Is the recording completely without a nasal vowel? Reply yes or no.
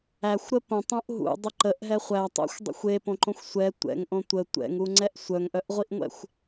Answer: no